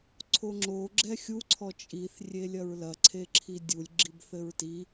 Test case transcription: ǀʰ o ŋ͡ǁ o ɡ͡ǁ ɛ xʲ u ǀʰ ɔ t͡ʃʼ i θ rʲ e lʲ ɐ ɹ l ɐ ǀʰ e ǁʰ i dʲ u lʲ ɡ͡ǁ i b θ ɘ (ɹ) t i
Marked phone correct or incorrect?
correct